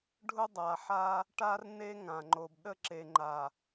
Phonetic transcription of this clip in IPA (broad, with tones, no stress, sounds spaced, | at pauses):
ɖʱ ʊ˦ dˤ a˨ ħ a˦ | ʈ a˦ r n e˦ ŋ ã˨ ŋ͡ǃ o˨ b ɗ ə˦ ǁ e˨ ŋ͡ǃ a˨